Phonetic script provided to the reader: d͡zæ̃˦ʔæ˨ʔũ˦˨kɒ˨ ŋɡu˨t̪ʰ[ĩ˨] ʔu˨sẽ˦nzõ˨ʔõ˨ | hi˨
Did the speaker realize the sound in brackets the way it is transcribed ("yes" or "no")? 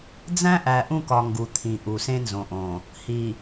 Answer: yes